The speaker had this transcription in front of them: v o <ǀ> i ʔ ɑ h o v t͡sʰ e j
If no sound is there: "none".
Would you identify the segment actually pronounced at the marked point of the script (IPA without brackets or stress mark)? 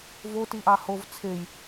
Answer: t